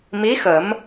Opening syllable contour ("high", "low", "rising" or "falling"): rising